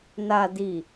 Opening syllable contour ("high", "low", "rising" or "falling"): low